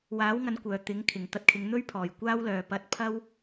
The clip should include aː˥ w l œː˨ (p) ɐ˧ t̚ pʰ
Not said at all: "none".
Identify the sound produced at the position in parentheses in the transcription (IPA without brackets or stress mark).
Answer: p